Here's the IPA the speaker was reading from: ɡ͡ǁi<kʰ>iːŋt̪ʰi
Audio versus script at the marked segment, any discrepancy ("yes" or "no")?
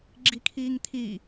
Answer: no